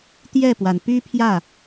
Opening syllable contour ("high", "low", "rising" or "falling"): falling